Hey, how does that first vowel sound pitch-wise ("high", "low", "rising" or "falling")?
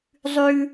low